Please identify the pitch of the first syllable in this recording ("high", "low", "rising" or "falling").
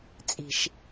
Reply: low